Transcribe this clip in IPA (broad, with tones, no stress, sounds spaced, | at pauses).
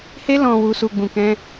h e˧ l ɔ̃˨ w u˨ s u˨ ɡ͡b ũ˨ k ɛ̃˧